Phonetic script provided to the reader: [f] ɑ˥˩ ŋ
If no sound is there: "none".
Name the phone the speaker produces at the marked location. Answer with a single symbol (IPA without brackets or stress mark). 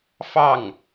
f